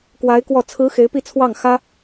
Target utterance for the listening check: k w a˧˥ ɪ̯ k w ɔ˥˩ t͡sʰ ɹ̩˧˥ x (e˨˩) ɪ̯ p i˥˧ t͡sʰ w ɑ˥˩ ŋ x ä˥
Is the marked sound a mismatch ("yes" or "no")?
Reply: yes